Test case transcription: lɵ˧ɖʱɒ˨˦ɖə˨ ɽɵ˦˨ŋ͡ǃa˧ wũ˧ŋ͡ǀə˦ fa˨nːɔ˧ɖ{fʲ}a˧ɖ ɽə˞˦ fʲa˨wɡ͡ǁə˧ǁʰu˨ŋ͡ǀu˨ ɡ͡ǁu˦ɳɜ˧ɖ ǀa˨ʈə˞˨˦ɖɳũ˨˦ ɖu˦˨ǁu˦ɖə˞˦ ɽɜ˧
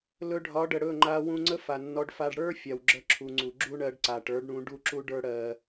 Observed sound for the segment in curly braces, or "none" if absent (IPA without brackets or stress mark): f